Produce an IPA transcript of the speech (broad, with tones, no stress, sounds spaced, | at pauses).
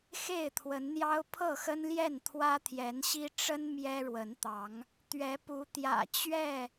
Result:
x e˥˨ ɪ̯ t̪ʰ w ə˨˦ n n̪ j ɑ˦ ʊ̯ pʰ ɤ˥˨ x ə˦ n l j ɛ˥˨ n t̪ʰ w ä˦ t̪ʰ j ɛ˨˦ n ɕ i˦ ʈ͡ʂ ə˦ n m j ɛ˦ ɻ w ə˨˦ n t̪ ɑ˨˦ ŋ | t̪ ɥ ɛ˨˦ p u˨˦ t̪ j ä̰˨˩ t͡ɕ ɥ ɛ˥˨